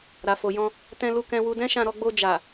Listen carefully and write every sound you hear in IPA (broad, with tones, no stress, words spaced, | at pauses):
ɾa˨fo˨jɔ̃˧ | tɛ̃˧lu˧kɛ̃˧ wu˧dɛ̃˦ʃã˧ ɾɔ˧ɡ͡bo˧ d͡ʒa˨